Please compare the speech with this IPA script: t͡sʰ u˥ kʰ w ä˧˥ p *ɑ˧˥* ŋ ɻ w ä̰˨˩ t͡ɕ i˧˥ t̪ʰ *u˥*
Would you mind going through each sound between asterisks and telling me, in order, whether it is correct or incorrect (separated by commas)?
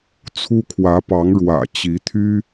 correct, incorrect